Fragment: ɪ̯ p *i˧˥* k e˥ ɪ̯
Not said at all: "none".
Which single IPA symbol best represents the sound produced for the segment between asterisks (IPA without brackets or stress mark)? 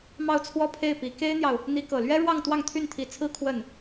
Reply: i˧˥